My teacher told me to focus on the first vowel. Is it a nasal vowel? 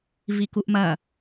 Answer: no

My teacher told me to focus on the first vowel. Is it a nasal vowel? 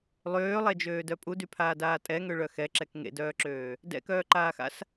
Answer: no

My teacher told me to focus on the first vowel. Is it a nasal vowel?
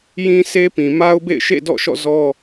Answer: yes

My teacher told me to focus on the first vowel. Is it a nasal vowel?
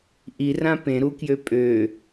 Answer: no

